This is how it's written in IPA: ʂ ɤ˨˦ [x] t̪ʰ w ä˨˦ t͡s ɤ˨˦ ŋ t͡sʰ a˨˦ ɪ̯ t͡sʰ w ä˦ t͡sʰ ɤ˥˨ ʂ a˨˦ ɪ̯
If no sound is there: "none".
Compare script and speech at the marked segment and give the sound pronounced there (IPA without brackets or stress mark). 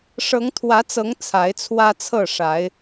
ŋ